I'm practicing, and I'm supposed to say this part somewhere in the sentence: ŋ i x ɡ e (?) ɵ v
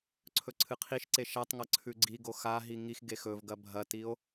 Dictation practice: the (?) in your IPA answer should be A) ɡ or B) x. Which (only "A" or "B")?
B